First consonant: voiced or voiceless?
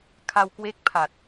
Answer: voiceless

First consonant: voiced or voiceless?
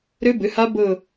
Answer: voiced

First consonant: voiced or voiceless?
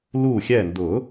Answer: voiced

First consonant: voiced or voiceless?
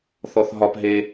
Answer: voiceless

